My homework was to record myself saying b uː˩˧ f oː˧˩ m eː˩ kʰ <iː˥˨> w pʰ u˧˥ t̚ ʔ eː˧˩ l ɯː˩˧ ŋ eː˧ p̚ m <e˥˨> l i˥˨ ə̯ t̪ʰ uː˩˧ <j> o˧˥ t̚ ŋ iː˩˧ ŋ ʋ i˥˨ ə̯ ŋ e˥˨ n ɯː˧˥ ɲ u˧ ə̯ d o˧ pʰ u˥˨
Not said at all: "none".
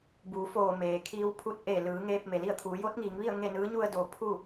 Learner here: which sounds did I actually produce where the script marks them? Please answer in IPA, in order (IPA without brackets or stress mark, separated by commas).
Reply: iː˧, e˩, j